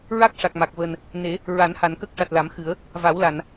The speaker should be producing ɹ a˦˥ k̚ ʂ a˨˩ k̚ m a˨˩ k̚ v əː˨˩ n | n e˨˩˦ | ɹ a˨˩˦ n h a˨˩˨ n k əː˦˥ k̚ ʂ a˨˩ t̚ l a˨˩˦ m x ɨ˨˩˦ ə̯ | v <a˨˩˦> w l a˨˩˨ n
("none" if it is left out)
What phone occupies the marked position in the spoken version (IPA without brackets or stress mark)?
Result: a˨˩˦